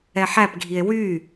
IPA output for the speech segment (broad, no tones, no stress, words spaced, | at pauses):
ɛħæpɡʱie̯ wy